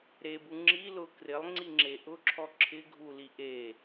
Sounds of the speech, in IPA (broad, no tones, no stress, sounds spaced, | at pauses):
ɾ e b u ŋ͡ǁ i l ʊ k r ɪ lˠ ŋ͡ǀ i ŋ͡ǁ e ʔ ʊ ǁʰ ɔ ǁʰ ɪ ɡʱ u l i ʔ e